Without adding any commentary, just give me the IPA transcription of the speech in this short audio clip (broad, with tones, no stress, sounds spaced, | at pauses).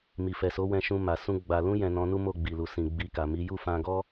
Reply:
m i˨ f ɛ˨ s o˨˦ w ɛ̃˧ ʃ ũ˧ m a˨ s ũ˧ ɡ͡b a˨ l ũ˧ j ɛ̃˨ n ɔ̃˧ n u˦ m o˦˨ ɡ͡b i˨ l u˨ s ĩ˨ ɡ͡b i˧ k a˨ m i˨˦ j u˦˨ f ã˧ ɡ ɔ˦